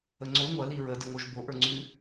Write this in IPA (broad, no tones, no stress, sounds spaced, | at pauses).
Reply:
ə ŋ͡ǀ o ŋʷ ɐ l i ɹ ə d ə ŋ o ʒ b o ʔ ə˞ ŋ͡ǀ ʉ